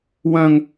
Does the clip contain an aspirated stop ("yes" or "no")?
no